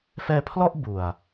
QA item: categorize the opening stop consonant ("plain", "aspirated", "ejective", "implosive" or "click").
aspirated